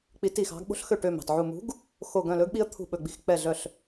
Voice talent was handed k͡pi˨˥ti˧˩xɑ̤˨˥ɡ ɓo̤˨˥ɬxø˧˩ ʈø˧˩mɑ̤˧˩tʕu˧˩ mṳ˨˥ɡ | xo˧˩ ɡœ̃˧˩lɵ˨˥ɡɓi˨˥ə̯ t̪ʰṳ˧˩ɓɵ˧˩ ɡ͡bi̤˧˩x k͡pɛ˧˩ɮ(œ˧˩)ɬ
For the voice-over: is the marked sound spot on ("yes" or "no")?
yes